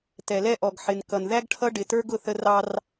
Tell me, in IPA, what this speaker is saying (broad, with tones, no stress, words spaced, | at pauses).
tɛ˨lɛ˦ ʔɔ˨ɡ ħɪ˨n kʌ˨n ðæ˦ɡʈʰʌ˦ɖɪ˨tə˞˦ɡ ʊ˦θə˦ rɑ˦r